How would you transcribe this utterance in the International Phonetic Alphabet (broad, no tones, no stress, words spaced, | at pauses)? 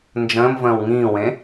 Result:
nd͡ʒə̃ːmvə̃ːw ŋĩːwẽ